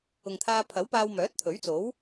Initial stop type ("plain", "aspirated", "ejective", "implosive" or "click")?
aspirated